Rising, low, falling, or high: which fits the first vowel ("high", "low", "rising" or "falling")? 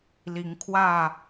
rising